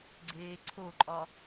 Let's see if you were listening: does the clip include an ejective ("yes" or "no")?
yes